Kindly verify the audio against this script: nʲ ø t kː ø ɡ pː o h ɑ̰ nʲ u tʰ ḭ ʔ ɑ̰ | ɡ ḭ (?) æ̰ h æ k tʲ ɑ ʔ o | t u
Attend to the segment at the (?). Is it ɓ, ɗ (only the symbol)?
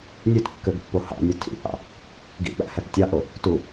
ɓ